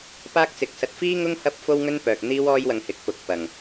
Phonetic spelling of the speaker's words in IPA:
p aː˥ k̚ t͡s ɪ˨˥ k̚ s ɐ˧ t̚ f iː˥ ŋ ʊ˥ ŋ h ɐ˥ p̚ f o˥ w ŋ ɵ˥ n p œː˨ k̚ n̪ iː˥ w ɔː˥ j w ɐ˧ ŋ h ɪ˨ k̚ p ʊ˨ k̚ p ɐ˨˩ ŋ

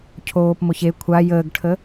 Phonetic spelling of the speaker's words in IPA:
cʰ oː p m o ç e kʷʰ a j əː ɡ ʈʰ ə

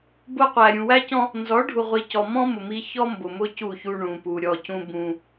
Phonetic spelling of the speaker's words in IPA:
b ʊ˦ qʷ æ˨ ɾʲ ũ˨ w æ˦ c ɔ̃˦ | n z ɔ˨˦ ɖʱ u˨ ʁʷ i˨ c ɔ˨ m ɔ̃˦ m ʊ˨ m i˦ ç ɔ˦ m b ʊ˨ m ʊ˦ c u˦˨ ç u˦ ɳ ũ˨ p u˨ ɾʲ ɔ˦˨ c ũ˦ b ũ˦

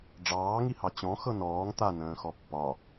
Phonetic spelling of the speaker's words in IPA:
ɖ͡ʐ ɑː ŋ i h ɑ t͡ɕ ɔ̃ x ɤ n ɔː ŋ t̪ a n ə̃ː x ɔ pː ɒ

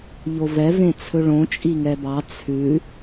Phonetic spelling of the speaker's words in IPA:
ʎ o v ɛ v ẽ t͡sʰ ɵ ɭ õ t͡ʃʼ i ŋ ɛ b ɑ t͡sʰ ʉ

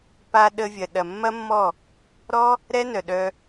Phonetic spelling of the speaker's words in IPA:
p a˧ ɗ ə˧ vʲ ɐ˨ ɗ ɐ˨ mː ɐ˦ mː ɔ˦˨ | ɾ ɔ˦ | ɾ ɛ˦ n œ˨ ɗ œ˧

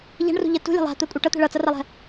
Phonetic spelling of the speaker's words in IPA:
ʎ a̤ ɳ r ṳ ʎ ɜ t ṳ lʲ a̤ lˠ a̤ t̪ ɜ kʷʼ ʌ ʈ ʌ t̪ ɛ̤ ɭ ʌ t͡s ʌ r a lˠ ɛ̤

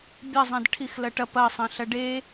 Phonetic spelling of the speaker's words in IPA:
bʲ ɐ zˤ ɐ̃ d ʈʰ i x l ɐ ʈ ɐ p ɐ sˤ ɐ̃ ɬ ɐ ɖ e

